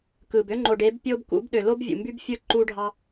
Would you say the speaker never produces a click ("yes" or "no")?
no